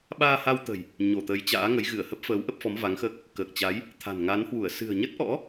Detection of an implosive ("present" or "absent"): present